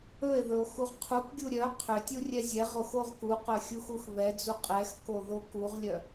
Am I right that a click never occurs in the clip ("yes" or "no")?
yes